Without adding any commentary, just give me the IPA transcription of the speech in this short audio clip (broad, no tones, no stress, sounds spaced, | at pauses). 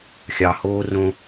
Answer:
xʲ ɑ h oː r õ